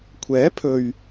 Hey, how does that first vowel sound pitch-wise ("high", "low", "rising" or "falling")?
rising